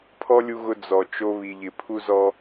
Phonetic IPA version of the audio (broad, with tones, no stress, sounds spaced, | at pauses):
pʰ ɔ˦ lʲ u˧ ɣ ʊ˧ d͡z ɔ˨ t͡ʃ o˧ β i˨ ʎ ɪ˨ pʰ u˧ z ɔ˧